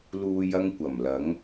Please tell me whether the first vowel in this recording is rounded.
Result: yes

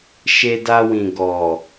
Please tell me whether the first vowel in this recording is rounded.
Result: no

